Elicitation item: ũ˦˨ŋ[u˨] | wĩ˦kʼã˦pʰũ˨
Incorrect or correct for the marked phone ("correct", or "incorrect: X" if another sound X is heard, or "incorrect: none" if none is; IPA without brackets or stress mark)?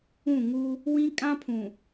incorrect: u˦